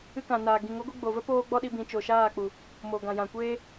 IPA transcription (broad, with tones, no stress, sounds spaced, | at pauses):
ɨ˧ k ã˨ n aː˨ ɡ ĩ˨ ŋ o˨˦ ɡʷ i˧ ɡ͡b o˨ v ə˦ p oː˦ ɡ͡b ɔ˦ ɗ i˧ b ĩ˨ t͡ʃ o˨ ʃ aː˦˨ k͡p u˨ | m o˨ ɡ ã˨ j ã˨ kʷ eː˦